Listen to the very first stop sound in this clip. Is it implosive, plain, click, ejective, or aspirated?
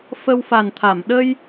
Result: aspirated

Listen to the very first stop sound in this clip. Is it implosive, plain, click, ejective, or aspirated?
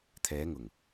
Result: aspirated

